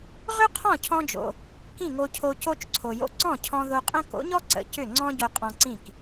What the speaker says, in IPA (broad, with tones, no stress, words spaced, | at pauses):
ʁʏ˥qʰɔ̃˥˩cʰɔ̃˧d͡ʒo̰˩ | kĩ˥˩ŋo˧cʰo˧ co˥t͡ʃǀʰo˩jo̰˧ ǀɔ̃˥˩cʰɔ̃˧ ðo˧qʼə̃˥ ko̰˩˥ɲɔ˥ ǀə̰˩ cʏ˥˩ŋ͡ǀɔ̃˥ ɟo˧qʼɔ̃˧ǀĩ˥˩k